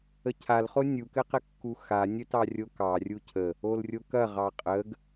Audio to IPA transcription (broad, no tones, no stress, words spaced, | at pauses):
əcʰalχo nʲukɘqɘkːu xanʲətɑ rʲokɑ rʲucʰə | olrʲokɐ ʁɑqʼəɡ